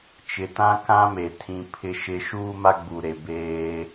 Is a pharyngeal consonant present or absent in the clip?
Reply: absent